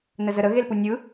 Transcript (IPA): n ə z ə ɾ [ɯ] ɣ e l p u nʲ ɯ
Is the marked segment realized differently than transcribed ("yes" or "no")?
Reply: yes